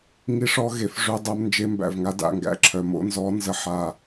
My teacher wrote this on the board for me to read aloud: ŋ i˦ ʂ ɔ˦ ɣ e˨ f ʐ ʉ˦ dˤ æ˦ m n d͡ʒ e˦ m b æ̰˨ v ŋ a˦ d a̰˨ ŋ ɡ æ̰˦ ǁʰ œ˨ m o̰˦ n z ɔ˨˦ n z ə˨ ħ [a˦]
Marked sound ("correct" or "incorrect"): incorrect